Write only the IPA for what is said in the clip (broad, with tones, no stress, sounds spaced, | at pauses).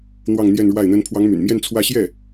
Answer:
n̪ w ɑ˥˧ ŋ n̪ j ɛ˥˧ n ɻ w a˥˩ ɪ̯ n̪ ə˥ n pʰ w ɑ˧˥ ŋ m y̰˨˩ n m j ɛ˥˧ n t͡sʰ w ä˥˧ ɕ j ɛ˥˩